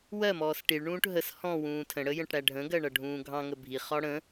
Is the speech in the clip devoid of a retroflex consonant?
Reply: no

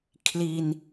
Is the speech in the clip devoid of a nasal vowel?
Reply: yes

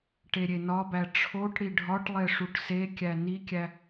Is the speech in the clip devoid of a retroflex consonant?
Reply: no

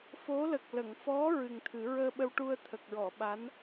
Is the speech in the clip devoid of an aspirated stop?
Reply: no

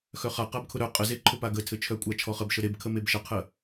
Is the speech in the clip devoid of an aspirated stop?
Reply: no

